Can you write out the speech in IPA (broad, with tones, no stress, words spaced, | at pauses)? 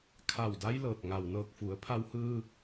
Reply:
kʰa˧˩wda˧˥jlɤː˧˩t̚ŋa˩w nɤː˧˩k̚fu˩˧ə̯ pʰa˧whɯː˧